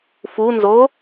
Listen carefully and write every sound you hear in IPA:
f u n z o

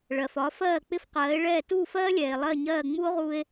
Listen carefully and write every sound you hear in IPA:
ɭ ɜ˩ f ɒ˩˥ f ɜː˥˩ k͡p ɪ˥ f q ɜː˩˥ e̯ ɭ ɛː˥˩ t uː˥˩ f ɜː˥ lʲ ɛː˩ e̯ lˠ ɜ˥˩ ɲ ɜː˥˩ ŋ͡m u˥ o̯ ʁ u˧ e̯

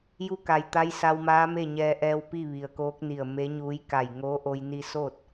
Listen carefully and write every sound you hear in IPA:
j u˧˥ k a˩ j t̪ a˧˥ j s a˧ w m aː˧˥ m e˥˨ ɲ ɛː˧ ʔ ɛː˧ w p i˥˨ ʋ i˩ ə̯ k oː˧˥ k̚ n i˧˩ ə̯ m e˧˥ ɲ uː˧˥ j k a˧˩ j ŋ oː˧˥ ʔ o˧ j n i˧ s oː˥˨ t̚

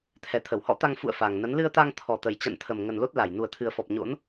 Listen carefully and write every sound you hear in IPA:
t̪ʰ ɛ˨˩ t̪ʰ ə˧˩ w h ɔ̰˧˥ t̪ a˧ ŋ f ṵ˧˨ ə̯ f a˨˩ ŋ n ə˨˦ n l ɨ˧ ə̯ t̪ a˧ ŋ t̪ʰ ɔ˨˩ t̪ ə˨˩ j t͡ɕ a̰˧˨ n t̪ʰ ə˨˩ m ŋ ə˨˩ n l o˦˥ t̚ l a˧˩ j n u˨˩ ə̯ t̪ʰ ɨ˨˩ ə̯ f ɔ˨˩ p̚ ɲ o̰˧˥ n

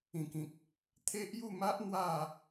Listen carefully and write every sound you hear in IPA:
ĩ˨˩ k ĩ˨ k̚ | t̪ʰ e˦ ʔ j u˥˧ m a˦ ʔ n̪ w a˥˧

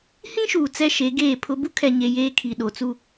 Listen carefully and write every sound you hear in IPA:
h ĩ˦ ʃ uː˨ t͡s ɛ˦ ʃ e˨˦ ɡ eː˦˨ pʰ ʊ˦ b u˦ kʰ ɛ˨ ɲ e˨ j eː˦ kʰ i˨ ɗ o˨ t͡s u˦

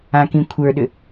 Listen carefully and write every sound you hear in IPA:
ã k ĩ kʷʰ ə˞ ɗ ʏ

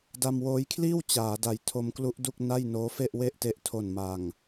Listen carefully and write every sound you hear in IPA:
d a˧ m w oː˦˥ j kʰ l iː˥˩ w t͡ɕ aː˩˦ d a˨˩ j tʰ o˦˥ m k l u˦˥ ʔ d u˥˩ k̚ n a˥˩ j n oː˦˥ f e˥˩ ʔ w e˥˩ ʔ t e˦˥ ʔ tʰ o˨˩ n m a˨˩ ŋ

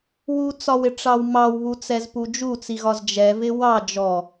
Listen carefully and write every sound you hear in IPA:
w u t͡s ɒ w ɪ ʈ͡ʂ ɑ w m ɑ w β u t͡s ɛ z p u d͡ʒ u t͡s i ɣ ɒ z d͡ʒ ɛ v ɪ w ɑ d͡ʒ ɔ

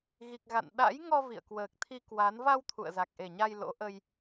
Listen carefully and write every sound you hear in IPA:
ɣ i˨˩ k̚ ɣ a̰˧˨ n ɗ a̰˧˥ j ŋ ɔ˧ v ḭ˧˨ ə̯ k w əː˨˩ k̚ t̪ʰ i˧ k w a˨˦ n v a˧ w t̪ʰ ṵ˧˨ ə̯ z a˨˩ k̚ ʔ e˨˩ ɲ a˧ j l o̰˧˥ ʔ ə˧ j

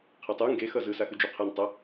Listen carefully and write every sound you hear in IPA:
qʰ ɛ tˤ u ŋ ɡ e x ʌ z ɯ s a x ɯ d͡ʒ o qʰ ɛ n tˤ ʌ

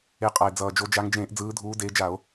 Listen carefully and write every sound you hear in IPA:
e˨˦ qʼ a˨˩ e̯ d͡z ʌː˨˩ d͡ʒ o˨˦ d͡ʒ a˨˦ ŋ d͡ʒ ẽː˧˩˧ ʔ d͡z ɯː˨˦ dʱ uː˨˦ d eː˨˦ d͡ʒ a˧˩˧ o̯

